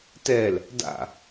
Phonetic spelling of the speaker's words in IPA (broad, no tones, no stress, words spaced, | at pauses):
tɛl | da̰